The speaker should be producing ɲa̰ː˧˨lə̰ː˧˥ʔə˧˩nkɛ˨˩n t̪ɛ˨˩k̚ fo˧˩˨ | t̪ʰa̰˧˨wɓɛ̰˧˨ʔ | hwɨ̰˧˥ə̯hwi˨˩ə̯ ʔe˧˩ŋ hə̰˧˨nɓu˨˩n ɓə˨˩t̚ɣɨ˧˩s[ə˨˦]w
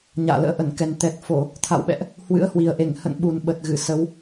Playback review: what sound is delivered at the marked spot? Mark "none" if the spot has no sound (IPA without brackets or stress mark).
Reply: ə˨˦